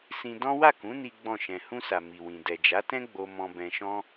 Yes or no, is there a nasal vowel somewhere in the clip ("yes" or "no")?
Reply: yes